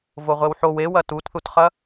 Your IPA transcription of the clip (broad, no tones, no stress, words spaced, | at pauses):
voʁʷewħow ewɐ tutθutχɐ